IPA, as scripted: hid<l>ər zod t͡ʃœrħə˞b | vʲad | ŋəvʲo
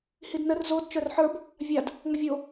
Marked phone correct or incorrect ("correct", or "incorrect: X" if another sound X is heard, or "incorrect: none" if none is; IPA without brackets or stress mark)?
incorrect: n